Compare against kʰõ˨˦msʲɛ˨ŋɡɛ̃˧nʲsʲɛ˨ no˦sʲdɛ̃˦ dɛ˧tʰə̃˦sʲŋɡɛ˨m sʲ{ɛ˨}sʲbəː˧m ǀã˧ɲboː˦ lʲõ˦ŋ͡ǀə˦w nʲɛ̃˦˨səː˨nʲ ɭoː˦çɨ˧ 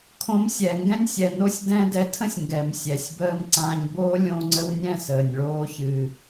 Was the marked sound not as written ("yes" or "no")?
no